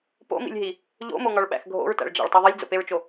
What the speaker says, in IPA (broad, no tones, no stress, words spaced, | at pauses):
po̰mḭlʲɦi | ʎo̰moŋɒɭɓæ̰x ɡʱo̰ɹtæ̰ɭd͡ʒæ̰ɭtˤu ðˤilʲd͡zo̰peɹt͡ʃo